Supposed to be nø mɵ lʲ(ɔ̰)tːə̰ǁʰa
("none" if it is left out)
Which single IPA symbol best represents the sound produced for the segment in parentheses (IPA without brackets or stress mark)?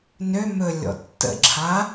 ɔ̰